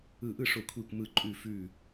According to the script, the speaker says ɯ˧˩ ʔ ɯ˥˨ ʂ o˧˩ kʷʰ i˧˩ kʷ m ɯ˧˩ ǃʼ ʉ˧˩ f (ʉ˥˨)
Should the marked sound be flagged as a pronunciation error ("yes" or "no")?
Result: yes